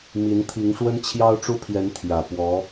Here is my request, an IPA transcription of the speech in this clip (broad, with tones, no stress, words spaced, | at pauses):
mi˧˥nt̪ʰi˧˥ŋʂwə˥n t͡ɕʰjɑ˥ʊ̯ʈ͡ʂu˥pʰjɛ˧˥n t̪ʰjä˨˩pwɔ˧˥